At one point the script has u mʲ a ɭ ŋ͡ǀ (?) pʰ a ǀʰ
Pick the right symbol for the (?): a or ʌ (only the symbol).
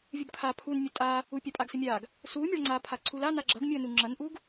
a